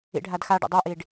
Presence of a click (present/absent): absent